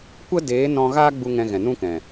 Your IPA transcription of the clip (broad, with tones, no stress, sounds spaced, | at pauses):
kʷ ə˦ d eː˨˦ n ɔ̃˦ ɣ aː˦ ɡ͡b u˧ ŋ ɛ̃˧ ɣ ɛ̃˨ n ũ˦ k ɛ̃˨